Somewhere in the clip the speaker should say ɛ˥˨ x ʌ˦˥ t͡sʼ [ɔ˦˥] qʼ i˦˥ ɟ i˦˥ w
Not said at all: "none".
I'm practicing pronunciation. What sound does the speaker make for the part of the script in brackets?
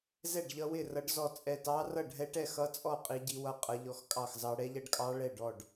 ɔ˥˨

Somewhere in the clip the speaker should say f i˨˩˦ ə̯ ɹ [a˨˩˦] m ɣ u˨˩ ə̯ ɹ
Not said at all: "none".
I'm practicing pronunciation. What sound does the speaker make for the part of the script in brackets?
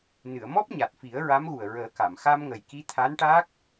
a˧˥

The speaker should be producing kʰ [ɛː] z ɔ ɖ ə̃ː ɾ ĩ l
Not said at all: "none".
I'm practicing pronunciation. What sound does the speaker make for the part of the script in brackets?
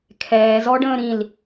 ɛː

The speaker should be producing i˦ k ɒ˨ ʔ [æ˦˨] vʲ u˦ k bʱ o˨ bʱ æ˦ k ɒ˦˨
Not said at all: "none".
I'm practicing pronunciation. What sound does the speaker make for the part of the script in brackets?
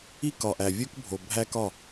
æ˨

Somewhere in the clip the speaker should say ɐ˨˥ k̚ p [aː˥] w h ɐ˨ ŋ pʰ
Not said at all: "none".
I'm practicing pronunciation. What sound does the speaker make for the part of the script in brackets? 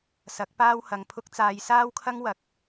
aː˥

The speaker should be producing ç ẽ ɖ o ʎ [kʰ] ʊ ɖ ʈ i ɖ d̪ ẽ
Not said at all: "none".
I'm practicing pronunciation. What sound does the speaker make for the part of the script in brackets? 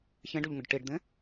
ŋ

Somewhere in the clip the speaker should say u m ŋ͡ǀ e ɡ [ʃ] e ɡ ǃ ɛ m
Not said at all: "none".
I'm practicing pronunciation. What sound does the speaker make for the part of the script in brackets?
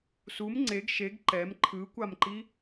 ʃ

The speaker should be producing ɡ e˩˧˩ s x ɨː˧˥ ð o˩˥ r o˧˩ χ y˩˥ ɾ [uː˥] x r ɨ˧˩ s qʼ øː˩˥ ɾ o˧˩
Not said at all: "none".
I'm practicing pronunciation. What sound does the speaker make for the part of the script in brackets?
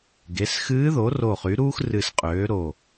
uː˥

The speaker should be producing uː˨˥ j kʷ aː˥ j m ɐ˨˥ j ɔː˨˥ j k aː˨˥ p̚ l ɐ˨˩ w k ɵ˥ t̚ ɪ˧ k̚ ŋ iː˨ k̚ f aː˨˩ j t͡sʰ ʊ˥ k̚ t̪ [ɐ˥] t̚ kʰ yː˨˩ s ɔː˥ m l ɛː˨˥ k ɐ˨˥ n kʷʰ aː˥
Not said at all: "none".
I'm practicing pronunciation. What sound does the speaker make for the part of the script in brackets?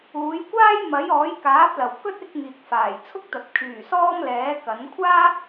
ɐ˨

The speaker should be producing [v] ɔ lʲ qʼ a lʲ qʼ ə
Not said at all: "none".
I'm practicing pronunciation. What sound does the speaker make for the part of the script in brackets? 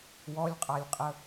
w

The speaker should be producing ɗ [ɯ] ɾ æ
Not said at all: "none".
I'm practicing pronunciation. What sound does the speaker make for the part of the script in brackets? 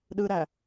ɯ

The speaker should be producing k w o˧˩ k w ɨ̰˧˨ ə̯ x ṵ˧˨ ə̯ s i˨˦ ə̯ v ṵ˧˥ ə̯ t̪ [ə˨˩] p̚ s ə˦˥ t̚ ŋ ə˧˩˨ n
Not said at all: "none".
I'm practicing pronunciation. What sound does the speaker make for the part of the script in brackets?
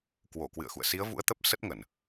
ə˦˥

